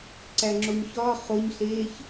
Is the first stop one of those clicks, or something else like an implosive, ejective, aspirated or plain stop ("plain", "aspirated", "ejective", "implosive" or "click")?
click